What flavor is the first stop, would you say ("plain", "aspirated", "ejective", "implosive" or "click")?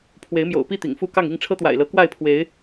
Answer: aspirated